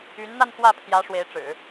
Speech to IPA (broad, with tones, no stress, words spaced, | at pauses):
y˧˥nn̪a˥˧nxwä˥˩ pʰjä˧˥ ʂwe˧˥ɪ̯ʈ͡ʂɻ̩˨˩˦